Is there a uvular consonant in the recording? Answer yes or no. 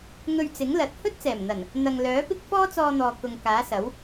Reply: no